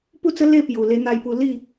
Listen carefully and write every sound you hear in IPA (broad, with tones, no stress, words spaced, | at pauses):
pu˥˧t͡sə˦ le˥˧pju˨˩ le˧n̪a˧jpu˧ li˥˧